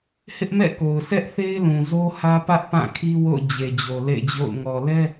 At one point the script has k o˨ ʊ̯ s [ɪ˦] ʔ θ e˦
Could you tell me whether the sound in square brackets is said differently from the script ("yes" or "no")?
yes